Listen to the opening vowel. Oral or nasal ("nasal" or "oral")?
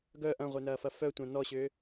oral